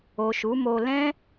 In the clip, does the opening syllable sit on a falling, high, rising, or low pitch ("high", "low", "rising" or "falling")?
low